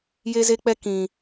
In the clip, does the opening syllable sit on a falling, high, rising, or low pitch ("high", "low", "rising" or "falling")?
high